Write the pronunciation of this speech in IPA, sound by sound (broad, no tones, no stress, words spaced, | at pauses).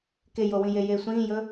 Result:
kejowĩ jejesʷĩːjɵ